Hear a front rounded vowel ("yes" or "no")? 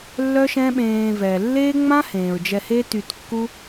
yes